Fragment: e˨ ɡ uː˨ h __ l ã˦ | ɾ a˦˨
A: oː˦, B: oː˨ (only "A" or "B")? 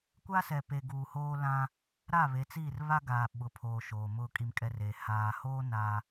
A